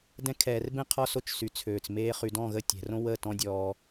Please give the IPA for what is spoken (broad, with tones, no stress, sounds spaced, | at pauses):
d ɛ̃˧ kʰ ɛː˨ r b ẽ˦ qʰ ɔ˦ s o˧ t͡ʃ s y˨ t͡sʰ øː˨ t͡s m eː˧ χ y˨ d ɔ̃˦˨ ɣ ə˧ tʲ ɛ̤˨ r õ˦ w ə˦˨ t ɔ̃˦ dʲ ɔː˧